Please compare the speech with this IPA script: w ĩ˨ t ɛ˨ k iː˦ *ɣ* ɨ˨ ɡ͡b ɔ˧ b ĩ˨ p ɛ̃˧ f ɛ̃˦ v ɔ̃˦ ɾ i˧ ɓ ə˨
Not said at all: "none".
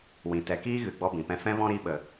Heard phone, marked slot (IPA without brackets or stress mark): ɣ